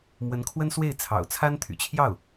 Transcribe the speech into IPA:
m w ə˧˥ n kʰ w ə˥ n s w e˥˩ ɪ̯ t͡sʰ ɑ̰˨˩ ʊ̯ t͡sʰ a˥ n t̪ʰ y̰˨˩ t͡ɕʰ j ɑ˥˩ ʊ̯

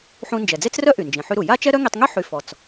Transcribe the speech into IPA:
ħ ũ˧ n d͡ʒ ɛ˩ d͡z e˥ t͡s r œ˥ ʔ y˩ n d͡ʒ ĩ˩ ħ y˧ ɾ u˩ j a˥ t͡ʃ ɛ˥ ɾ œ˥ ŋ i˧ tˤ ŋ y˥ ħ y˧ f ɔ˩ t͡s

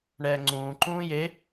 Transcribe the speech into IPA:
ɳ ɛː ŋ͡ǀ ũː ǃ ũː j e

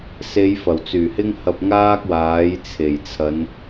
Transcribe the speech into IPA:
s e˨˧ j f ɐ˨˩ w t͡s yː˨˩ h ɪ˥ ŋ h ɐ˧ p̚ ŋ aː˥ k̚ w aː˨˥ j t͡sʰ e˨˩ j t͡sʰ ɐ˨˧ n

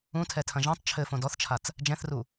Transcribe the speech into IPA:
ũ tʰ ɛ tʰ ɐ̃ ʒ ɛ̃ tˤ t͡ʃʰ ɘ f õ d ɔ θ t͡ʃʰ a t͡s | d͡ʒ ɛ̃ θ r u

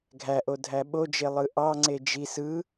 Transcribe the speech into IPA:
ɡʱ æ ʔ o dʱ æ ɓ o d͡ʒ e lˠ ɯ ʔ ɑ ŋ͡ǀ e d͡ʒ i s ɯ

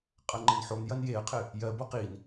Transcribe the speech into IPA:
qʼ ɐ ŋ͡ǃ ɘ n ħ o n j ɐ n j e ə̯ qʰ ɘ | j ɜ b o q i n

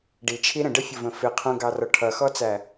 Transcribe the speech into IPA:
ɖ i t͡ʃʰ i ɾ ə̃ ɖ ə fʲ ʌ v ə̃ f ɪ qʰ ũ ɡ ɑ r ɔ ʈʰ ʌ x ɔ t͡s æ

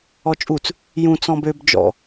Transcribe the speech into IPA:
ɔ t͡ʃʼ u t͡s | j ũ t͡s ɔ̃ b ø b d͡ʒ ɔ̰

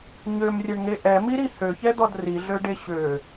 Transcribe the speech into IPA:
ɲ ø m rʲ ɛ ɳ ŋ e ʔ ɛ m i ɾ i h ø ç ɛ d̪ ɔ d r i ɮ ø ɖ e ɕ ø

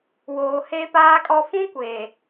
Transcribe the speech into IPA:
w oː˨ h e˦ p aː˦ kʼ ɔ˦ f ũ˦ kʷ eː˨

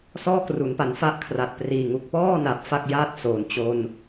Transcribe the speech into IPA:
s ɔː˥˩ k r u˩˦ n p a˩˦ n f a˦˥ ʔ kʰ r a˨˩ t̚ p r iː˨˩ ŋ u˦˥ k̚ p ɔː˥˩ n a˨˩ p̚ f a˥˩ k̚ j aː˥˩ t̚ s o˩˦ n t͡ɕ o˧ n

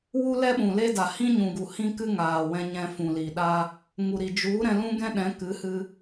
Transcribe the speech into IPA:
w u˦ l ɛ˦ ɓ ũ˨ l e˦ d a˨ h ĩ˦ ɲ ũ˨ ɡ u˨ h ĩ˦ k ɨ˦ ŋ aː˨ w ɛ̃˧ ɲ ɛ̃˧ f ũ˨ l i˨ ɗ a˦ | ŋ u˨ ɾ i˨ d͡ʒ u˨˦ ɾ ɛ̃˧ l ũ˦ ɡ ɛ̃˦ ɗ ɛ̃˨˦ k ɨ˨˦ h ɨ˧

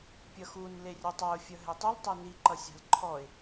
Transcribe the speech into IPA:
pʲ ʌ x u n l e rʲ ʌ tˤ ʌ ʊ̯ fʲ ʌ ɦ e tˤ u l tˤ e n i ǃ ʌ sʲ a̤ l ǃʰ ɔ ɪ̯

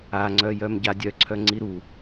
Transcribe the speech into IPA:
a ŋ͡ǀ œ j œ m ɟ a dʲ œ ǀʰ œ ŋ͡ǀ i ɾ u

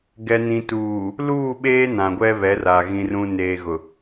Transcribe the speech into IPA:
ɡ ɛ˨ n ĩ˨ t uː˨ | l uː˦˨ ɓ eː˦ n ã˨ ɡʷ ɛ˦ β ɛ˨˦ r a˨ ɣ ĩ˨ r ũ˨ n eː˨ ɣ ʊ˨

